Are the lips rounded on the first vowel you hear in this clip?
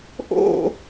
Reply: yes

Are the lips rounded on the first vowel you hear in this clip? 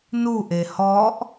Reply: yes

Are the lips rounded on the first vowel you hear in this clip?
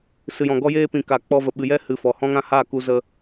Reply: no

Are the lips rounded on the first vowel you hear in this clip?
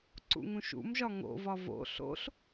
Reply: yes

